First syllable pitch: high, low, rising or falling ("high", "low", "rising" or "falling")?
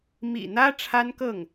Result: low